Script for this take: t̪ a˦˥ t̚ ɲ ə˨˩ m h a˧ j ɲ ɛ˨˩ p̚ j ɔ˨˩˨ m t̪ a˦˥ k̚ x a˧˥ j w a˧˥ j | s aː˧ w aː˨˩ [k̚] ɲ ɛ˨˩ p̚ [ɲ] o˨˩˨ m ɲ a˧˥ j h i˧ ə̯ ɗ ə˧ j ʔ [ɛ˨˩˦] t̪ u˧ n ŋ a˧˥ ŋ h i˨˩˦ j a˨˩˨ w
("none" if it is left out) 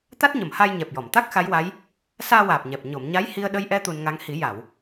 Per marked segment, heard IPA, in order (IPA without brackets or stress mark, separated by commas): p̚, ɲ, ɛ˧